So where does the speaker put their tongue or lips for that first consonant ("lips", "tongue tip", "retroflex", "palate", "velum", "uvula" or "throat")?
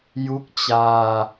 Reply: palate